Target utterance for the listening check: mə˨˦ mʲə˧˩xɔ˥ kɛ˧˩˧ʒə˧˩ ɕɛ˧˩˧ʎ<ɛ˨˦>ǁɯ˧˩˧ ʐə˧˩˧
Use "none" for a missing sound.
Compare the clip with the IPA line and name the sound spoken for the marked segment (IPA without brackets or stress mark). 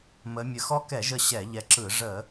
ɛ˨˦